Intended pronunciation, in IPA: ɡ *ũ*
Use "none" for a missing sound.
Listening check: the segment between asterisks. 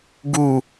u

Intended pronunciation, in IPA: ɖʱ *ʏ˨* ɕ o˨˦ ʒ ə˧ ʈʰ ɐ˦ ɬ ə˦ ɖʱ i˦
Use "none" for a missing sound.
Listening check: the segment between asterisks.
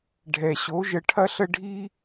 ɛ˨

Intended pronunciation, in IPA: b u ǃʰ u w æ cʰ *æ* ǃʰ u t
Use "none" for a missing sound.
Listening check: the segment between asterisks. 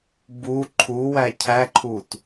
æ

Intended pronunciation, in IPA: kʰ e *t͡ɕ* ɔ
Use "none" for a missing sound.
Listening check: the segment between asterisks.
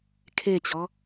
t͡ɕ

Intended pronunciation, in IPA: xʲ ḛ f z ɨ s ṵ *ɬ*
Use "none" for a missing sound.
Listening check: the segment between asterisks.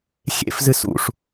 ʂ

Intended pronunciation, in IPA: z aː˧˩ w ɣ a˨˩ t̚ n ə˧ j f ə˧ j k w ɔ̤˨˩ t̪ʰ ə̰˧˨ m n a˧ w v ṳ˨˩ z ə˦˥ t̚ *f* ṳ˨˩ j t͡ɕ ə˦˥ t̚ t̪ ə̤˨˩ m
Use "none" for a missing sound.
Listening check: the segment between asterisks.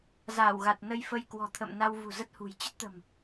h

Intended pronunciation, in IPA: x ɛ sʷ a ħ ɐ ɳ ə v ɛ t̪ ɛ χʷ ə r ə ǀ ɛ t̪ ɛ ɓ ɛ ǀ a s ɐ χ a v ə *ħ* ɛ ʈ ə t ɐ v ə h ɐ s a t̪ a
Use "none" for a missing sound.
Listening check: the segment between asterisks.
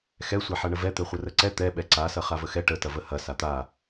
x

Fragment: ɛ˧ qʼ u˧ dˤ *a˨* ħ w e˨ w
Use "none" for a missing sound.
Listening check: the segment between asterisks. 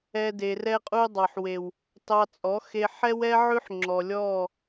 ɑ˨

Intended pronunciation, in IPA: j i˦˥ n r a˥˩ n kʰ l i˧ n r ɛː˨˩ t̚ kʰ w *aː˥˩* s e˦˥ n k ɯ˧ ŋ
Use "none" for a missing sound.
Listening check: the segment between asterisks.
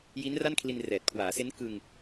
aː˩˦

